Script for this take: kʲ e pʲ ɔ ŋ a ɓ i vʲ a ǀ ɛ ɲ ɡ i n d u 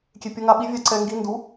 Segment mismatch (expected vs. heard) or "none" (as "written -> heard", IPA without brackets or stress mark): ɲ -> ŋ